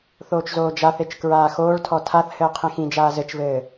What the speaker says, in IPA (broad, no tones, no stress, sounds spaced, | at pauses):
θ oː t͡ʃ z oː d͡ʒ a θ e t͡ʃ k ɹ aː x oː ɭ tʰ ɔ tʰ a θ h ɘː qʰ ĩ x ĩ d͡ʒ aː z ɘ t͡ʃ v ɘː